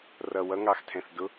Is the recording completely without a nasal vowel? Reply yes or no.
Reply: no